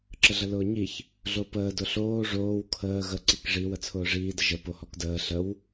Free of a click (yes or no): no